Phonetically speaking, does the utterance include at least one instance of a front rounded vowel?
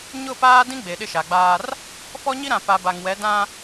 no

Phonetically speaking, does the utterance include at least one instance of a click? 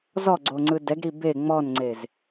yes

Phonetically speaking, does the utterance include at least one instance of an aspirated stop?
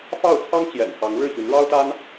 yes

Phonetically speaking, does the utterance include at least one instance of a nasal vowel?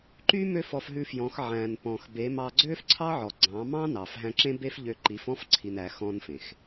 yes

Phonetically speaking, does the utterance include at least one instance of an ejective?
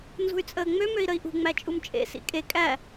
yes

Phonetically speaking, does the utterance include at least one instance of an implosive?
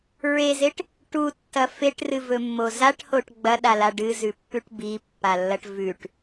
yes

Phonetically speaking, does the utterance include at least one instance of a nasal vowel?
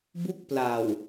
no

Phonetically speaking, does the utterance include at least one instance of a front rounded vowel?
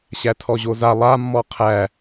no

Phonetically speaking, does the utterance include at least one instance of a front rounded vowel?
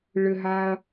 yes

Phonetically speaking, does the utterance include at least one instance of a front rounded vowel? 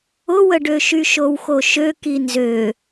yes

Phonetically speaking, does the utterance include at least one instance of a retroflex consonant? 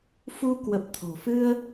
no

